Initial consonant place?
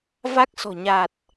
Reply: labial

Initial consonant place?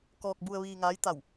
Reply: velar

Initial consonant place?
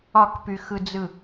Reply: velar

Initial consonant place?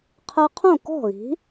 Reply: uvular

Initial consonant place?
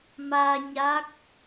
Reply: labial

